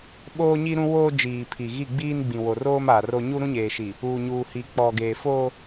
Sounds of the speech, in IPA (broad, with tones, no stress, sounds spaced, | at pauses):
ɓ oː˦ ɲ i˦ ɾ ũ˦ w oː˦ d͡ʒ iː˨ pʰ i˨ ɣ i˦˨ ɡ͡b iː˦ n ɡ͡b ĩ˨ w o˨ r oː˦ m a˨ r o˦ ɲ u˦ ɾ ũ˦ ɲ eː˨ ʃ i˨ | uː˨ ɲ uː˨ h i˨ k͡p ɔ˨ ɡ eː˨ f oː˦